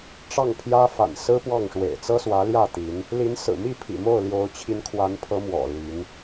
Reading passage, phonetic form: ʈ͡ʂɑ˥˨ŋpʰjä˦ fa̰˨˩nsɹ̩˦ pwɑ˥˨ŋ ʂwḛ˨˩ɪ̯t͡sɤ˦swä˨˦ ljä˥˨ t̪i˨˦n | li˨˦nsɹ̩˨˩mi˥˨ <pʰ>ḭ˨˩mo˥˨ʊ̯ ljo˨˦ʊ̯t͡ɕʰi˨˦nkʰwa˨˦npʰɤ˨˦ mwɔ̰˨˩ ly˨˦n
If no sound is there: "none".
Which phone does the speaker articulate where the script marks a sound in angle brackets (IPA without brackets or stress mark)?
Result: pʰ